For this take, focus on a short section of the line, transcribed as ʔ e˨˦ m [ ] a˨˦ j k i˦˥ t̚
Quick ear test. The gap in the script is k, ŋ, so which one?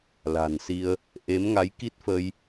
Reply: ŋ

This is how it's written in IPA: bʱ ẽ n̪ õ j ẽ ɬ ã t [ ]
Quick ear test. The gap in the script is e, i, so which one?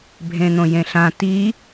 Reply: i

